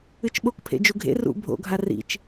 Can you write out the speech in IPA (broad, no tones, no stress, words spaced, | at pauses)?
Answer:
ɨt͡ʃɓokpʰḛ d͡ʒuɡʱḛ rṵ bʱo̰ɡʱa rḭt͡ʃ